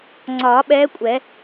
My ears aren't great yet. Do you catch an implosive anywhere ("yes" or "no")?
yes